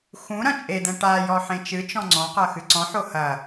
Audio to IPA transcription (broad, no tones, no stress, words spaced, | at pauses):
xũ ɾɐ̃t͡ʃʼed̪ɛ̃ ʈajɔ ħẽt͡ʃɨt͡ʃɔ̃ ŋ͡ǀɔ̃qɐ xɨǀɔ̃ħo hɐ